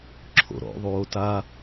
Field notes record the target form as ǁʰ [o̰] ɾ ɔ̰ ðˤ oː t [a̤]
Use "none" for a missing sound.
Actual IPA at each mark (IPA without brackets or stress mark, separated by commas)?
o̰, a